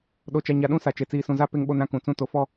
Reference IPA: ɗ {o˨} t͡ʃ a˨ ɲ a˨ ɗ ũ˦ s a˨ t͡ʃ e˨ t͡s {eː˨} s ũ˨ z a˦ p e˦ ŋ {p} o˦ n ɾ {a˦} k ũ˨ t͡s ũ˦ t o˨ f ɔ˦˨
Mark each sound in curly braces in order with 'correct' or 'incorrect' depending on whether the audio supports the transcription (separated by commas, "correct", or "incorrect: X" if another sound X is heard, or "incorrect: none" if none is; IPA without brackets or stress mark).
correct, incorrect: iː˨, incorrect: ɓ, incorrect: ã˦